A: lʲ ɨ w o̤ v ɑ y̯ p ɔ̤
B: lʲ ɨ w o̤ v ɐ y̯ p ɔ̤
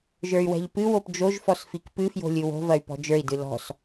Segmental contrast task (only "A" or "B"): B